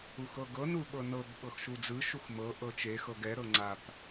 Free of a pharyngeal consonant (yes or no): yes